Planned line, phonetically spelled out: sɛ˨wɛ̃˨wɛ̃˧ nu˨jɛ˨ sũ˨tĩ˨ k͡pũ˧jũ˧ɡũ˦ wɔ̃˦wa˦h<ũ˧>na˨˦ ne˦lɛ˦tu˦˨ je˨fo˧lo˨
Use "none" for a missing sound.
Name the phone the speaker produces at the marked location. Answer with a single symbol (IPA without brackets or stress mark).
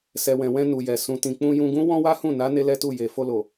ũ˦˨